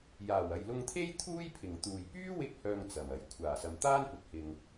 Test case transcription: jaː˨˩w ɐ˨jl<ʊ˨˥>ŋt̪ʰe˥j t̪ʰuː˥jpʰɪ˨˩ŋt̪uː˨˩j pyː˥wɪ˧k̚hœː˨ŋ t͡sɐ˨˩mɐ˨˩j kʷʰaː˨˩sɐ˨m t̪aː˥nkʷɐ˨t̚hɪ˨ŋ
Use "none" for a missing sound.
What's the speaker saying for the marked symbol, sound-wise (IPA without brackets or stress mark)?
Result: ʊ˧